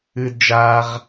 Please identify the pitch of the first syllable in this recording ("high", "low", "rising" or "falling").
high